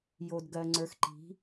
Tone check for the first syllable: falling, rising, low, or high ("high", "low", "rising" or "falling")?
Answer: low